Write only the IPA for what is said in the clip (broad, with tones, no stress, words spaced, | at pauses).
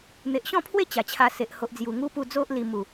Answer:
n̪e˨ʔɕɔ̃˥˧pʰwe˥˧ t͡ɕa˨˩t͡ɕʰa˧ se˨ʔho˨ʔd͡zju˨˩ ŋu˦pu˧d͡zo˦ʔ li˧mu˨˩